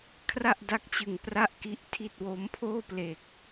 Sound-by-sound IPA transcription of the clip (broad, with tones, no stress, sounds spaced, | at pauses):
kʰ r a˥˩ ʔ d a˦˥ k̚ t͡ɕ ɯ˨˩ ŋ p r a˥˩ ʔ k i˦˥ ʔ tʰ i˥˩ t̚ w o˦˥ m pʰ oː˥˩ p l eː˨˩ k̚